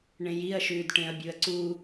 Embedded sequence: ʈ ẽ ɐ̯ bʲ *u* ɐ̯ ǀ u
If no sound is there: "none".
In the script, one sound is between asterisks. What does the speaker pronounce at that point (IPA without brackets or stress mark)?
u